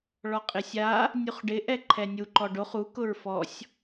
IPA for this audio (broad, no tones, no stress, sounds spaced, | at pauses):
ɭ ɔ qʼ ɪ sʲ a | nʲ u χ ɖ ɪ ʔ ɛ ǃʰ ɛ nʲ u ǃ ɔ ɖ o χ u k ʊ ɹ f ɔ sʲ